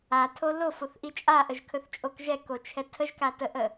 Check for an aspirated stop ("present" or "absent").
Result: present